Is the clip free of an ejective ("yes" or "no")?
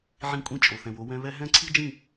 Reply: no